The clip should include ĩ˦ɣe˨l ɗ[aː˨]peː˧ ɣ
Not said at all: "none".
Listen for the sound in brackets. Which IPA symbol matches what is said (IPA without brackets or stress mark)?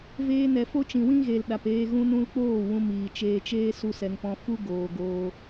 a˨